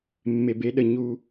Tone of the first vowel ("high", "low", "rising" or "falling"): low